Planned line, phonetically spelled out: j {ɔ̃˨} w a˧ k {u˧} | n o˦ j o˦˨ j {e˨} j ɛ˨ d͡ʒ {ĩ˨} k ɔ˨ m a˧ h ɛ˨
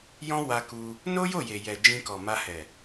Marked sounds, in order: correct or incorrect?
incorrect: ɔ̃˦, correct, correct, incorrect: ĩ˧

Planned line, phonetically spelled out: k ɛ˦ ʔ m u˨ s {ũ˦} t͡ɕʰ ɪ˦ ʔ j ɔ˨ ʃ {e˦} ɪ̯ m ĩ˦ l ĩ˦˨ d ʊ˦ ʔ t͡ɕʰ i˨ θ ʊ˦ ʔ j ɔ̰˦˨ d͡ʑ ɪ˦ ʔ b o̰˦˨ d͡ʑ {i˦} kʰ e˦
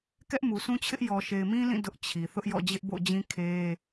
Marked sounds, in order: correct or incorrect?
correct, incorrect: e˨, incorrect: ĩ˦

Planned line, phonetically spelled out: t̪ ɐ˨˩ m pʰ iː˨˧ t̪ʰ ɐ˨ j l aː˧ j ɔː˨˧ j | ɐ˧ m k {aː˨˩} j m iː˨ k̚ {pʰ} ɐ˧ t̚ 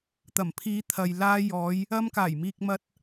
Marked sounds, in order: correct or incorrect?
correct, incorrect: m

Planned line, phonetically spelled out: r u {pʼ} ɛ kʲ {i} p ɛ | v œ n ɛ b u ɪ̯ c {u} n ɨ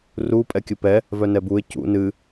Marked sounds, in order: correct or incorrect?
correct, incorrect: ɨ, incorrect: ṵ

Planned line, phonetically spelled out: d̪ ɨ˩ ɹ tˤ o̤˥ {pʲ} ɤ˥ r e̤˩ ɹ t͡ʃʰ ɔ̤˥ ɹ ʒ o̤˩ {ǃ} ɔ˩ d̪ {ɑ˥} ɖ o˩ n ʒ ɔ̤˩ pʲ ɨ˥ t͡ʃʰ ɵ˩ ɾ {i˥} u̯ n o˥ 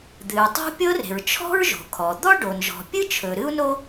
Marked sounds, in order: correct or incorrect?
correct, incorrect: kʰ, incorrect: ɔ˥, incorrect: ɨ˥

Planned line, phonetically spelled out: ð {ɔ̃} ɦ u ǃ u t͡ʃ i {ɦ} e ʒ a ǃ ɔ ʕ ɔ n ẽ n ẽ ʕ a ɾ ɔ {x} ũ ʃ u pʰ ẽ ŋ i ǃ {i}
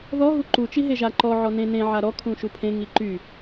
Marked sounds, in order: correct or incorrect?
incorrect: ɔ, correct, incorrect: kʰ, incorrect: y

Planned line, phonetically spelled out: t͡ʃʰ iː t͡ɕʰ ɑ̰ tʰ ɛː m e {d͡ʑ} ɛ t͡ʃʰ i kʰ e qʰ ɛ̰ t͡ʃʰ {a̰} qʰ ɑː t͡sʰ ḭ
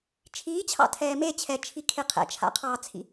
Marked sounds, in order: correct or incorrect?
incorrect: t͡ɕʰ, correct

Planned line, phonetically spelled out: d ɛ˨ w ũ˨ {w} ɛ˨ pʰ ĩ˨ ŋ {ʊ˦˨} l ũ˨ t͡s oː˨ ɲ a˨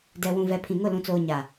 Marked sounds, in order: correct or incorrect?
incorrect: v, correct

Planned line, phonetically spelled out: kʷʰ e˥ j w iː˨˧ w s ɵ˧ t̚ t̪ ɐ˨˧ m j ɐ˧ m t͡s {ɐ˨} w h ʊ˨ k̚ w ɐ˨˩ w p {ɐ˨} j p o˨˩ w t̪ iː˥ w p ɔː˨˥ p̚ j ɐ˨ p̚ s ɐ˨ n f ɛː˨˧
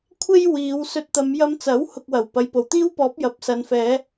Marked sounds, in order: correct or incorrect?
incorrect: ɐ˨˥, correct

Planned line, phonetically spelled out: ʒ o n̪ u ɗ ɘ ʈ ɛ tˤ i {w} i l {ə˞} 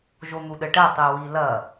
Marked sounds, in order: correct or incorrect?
correct, incorrect: ɐ

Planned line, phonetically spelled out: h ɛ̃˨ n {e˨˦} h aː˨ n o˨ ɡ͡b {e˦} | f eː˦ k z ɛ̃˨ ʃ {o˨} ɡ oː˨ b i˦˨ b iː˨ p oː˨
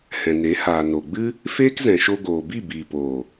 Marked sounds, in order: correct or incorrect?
correct, incorrect: ɨ˦, incorrect: o˧

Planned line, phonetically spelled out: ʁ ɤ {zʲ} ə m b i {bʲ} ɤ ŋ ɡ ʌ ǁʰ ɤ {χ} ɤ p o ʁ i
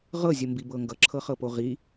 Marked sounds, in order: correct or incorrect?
correct, incorrect: b, correct

